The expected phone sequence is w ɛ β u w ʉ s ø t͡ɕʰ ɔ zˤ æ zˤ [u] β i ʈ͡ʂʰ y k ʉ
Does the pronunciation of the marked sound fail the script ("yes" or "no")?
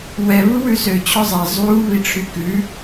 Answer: no